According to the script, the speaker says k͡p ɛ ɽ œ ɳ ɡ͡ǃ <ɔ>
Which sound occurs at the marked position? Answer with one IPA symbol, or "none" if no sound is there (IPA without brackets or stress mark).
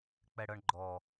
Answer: ɔ